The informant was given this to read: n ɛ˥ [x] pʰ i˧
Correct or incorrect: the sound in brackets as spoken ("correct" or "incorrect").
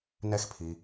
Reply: correct